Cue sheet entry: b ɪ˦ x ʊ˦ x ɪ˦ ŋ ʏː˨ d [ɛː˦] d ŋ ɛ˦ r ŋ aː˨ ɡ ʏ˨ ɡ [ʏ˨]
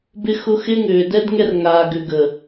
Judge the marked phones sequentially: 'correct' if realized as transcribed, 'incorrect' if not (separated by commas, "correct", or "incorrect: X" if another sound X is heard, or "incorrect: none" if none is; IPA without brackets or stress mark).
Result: incorrect: ɛ˦, incorrect: ə˨